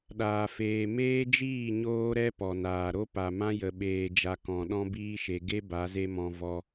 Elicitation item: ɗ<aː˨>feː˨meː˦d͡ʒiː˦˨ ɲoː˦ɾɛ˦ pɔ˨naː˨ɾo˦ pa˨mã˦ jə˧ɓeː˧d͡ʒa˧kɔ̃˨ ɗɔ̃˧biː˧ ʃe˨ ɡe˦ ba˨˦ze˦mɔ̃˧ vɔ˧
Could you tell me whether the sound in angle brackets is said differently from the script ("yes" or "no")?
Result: no